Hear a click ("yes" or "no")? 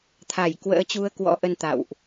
no